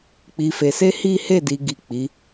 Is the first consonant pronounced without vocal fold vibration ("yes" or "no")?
yes